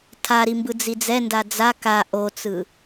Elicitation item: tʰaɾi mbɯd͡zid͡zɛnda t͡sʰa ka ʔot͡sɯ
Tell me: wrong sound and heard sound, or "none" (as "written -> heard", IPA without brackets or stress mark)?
t͡sʰ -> d͡z